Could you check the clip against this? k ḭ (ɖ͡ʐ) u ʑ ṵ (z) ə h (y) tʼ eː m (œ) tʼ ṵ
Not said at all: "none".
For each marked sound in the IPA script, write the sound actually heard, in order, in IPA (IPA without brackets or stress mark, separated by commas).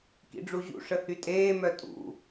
ɖ͡ʐ, ʂ, y, œ